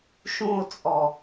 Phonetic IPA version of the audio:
ʃũo̯t͡sʼɔ

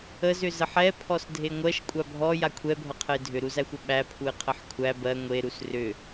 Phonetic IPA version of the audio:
əzʏ zəħɛ pʰɔsdʱeŋʷɜʃ kʷʼabʱɔ jakʷʰɛbʱʌqʰəɪ̯ dʱʏɾuzæxʷʌ ɓæpʰuɪ̯ qʰəħkʷʰæ bɜ ŋʷeɾus rʏ

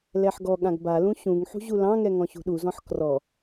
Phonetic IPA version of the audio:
lɛħɡɔɠãɡ balũ ɕũŋ ħṳʑulɑ̃ŋɛ ŋɔ̃ɕṳɗuzɔ̃ħ krɔ

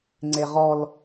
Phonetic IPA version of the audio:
ŋ͡ǀeʁɔl

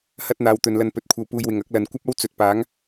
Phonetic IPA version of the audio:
hɐ˥t̚n̪aː˨˧wt̪ɵ˨nlɐ˧n pɵ˨˥t̚kʷʰɐ˧wpuː˧jwɪ˨ŋ ɐ˨˥k̚lɐ˨n kʷɐ˥p̚ɐ˥w t͡sɵ˨t̚paː˨˥ŋ

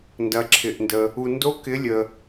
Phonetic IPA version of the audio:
ndɐ˩ǁʰɪ˩ʔndə˩ | u˩ndo˨˥ kɪ˨˥lʲə˩

